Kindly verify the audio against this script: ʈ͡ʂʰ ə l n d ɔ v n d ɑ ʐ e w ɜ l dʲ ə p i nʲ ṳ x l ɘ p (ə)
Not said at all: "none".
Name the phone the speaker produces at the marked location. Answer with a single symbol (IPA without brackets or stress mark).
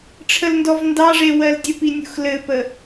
ə